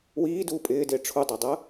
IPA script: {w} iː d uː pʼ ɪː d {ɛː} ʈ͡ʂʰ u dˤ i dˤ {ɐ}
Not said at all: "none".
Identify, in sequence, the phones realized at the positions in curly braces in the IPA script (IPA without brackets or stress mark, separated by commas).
w, ɪː, ɐ